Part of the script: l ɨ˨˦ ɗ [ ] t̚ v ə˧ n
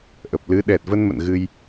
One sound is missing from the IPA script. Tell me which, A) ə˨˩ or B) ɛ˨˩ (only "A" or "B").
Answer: B